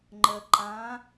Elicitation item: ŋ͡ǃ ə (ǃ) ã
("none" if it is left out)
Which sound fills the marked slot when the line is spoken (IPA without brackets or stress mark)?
ǃ